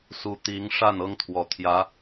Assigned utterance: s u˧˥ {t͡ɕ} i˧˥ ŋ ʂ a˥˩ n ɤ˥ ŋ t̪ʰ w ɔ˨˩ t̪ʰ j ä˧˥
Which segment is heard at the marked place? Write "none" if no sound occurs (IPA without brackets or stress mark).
t̪